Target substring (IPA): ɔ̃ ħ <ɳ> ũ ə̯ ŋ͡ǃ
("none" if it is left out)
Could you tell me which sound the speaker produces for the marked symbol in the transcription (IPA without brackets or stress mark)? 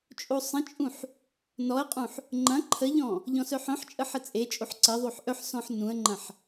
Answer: n